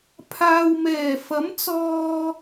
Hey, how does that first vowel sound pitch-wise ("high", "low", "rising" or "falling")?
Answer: low